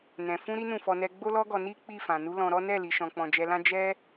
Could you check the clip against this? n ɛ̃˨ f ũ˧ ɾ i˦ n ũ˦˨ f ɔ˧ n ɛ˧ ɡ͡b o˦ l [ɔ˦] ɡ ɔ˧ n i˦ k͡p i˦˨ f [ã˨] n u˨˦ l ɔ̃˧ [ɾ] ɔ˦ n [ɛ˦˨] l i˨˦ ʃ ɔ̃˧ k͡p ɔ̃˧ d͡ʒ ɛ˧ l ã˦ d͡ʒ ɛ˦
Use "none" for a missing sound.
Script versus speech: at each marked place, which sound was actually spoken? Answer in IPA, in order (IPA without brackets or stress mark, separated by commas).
ɔ˦, ã˨, ɾ, ɛ˦˨